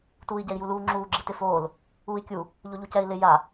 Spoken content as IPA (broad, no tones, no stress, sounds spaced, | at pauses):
t uː i̯ ɟ ɛ i̯ j u l uː ŋ͡ǁ uː ɡ͡ǁ i t ɪ f oː l | uː i̯ kʲ u | ʎ o ʎ u c ɛ i̯ l ɪ j a